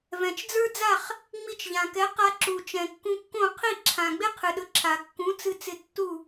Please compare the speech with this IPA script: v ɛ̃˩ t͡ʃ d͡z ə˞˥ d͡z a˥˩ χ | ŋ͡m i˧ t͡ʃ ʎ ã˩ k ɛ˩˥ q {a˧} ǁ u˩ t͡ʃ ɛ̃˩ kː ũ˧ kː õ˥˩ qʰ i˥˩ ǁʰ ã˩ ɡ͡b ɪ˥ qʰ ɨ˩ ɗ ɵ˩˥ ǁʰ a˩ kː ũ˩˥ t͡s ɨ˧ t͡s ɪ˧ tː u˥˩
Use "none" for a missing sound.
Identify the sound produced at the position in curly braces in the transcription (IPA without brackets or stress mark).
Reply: a˧